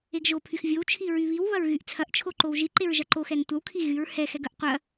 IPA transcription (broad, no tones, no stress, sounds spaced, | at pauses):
e ɡ ʒ o pʰ y x vʲ o w t͡ʃʰ i ɹ y β i w β ɐ ɹ ɣ y ʔ t͡sʰ ɐ ʔ t͡ʃʰ o ǃ o w ʒ i ǃ e ɹ ʒ ɐ ǃ o x ɛ n tʷ ɐ w kʰ i ɣ y ɹ h ɛ x ɛ ɡ ɐ ʔ qʷ ɐ